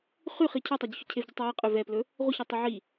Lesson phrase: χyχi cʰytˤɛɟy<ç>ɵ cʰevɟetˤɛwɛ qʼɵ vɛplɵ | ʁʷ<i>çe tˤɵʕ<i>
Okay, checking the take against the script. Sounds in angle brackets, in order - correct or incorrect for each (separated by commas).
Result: correct, correct, correct